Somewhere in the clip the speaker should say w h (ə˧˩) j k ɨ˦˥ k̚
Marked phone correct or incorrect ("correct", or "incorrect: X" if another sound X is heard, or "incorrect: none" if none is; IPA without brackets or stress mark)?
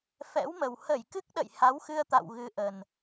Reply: correct